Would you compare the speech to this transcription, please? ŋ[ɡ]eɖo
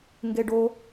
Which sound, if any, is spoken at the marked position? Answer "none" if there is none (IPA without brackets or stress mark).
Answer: ɡ